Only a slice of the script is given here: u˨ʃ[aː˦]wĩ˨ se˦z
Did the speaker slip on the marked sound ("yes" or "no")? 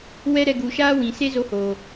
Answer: no